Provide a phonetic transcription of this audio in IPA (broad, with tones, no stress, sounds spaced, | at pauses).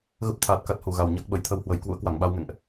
ɣ ə˦˥ p̚ t̪ʰ aː˨˩ t̚ k a˦˥ t̚ h u˨˩ ɣ a˨˩ w ɲ a˦˥ k̚ ɓ ə˧˩ j t̪ʰ ə˧ w h w ə˨˩ j k w ṵ˧˥ ə̯ k w a˧˩ ŋ ɓ a˧ w ŋ ɛ̰˧˨ ŋ ʔ